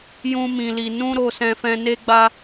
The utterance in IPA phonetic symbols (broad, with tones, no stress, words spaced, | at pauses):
jũ˦mĩ˧li˧ nũ˦ɾo˧ sɛ̃˧fɛ̃˧ ne˦ɡ͡ba˦